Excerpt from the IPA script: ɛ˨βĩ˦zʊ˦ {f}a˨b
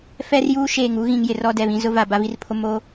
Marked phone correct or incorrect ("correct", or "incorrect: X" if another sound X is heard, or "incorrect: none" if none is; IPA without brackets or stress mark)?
incorrect: v